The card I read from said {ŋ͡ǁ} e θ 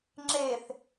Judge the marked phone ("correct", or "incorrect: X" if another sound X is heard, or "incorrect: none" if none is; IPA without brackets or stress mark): correct